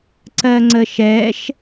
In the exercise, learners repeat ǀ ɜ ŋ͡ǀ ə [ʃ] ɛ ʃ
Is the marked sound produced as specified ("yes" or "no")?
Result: yes